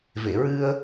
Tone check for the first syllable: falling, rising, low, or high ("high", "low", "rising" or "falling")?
low